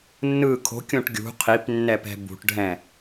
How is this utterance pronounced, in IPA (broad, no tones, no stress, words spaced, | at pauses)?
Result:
nːɯ kʰo̤kʲõʈ ɡʲṳ qʰipnːɛpɛ̤ bṳʈɖʱɛ̃